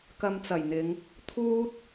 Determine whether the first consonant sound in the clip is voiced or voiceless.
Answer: voiceless